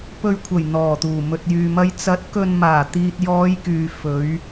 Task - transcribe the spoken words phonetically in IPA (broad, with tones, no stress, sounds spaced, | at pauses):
p ɵ˨ ɥ kʷʰ ɐ˨˩ j n̪ ɔː˨˩ t̪ uː˨˩ m ɵ˨ t̚ j yː˨ m ɐ˧ j t͡s ɐ˨˥ t̚ k ɵ˨ n m aː˨˩ t̪ iː˨ t̚ j ɔː˨˧ j k yː˨ f ɵ˨˧ ɥ